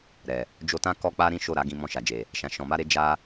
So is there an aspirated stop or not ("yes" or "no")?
no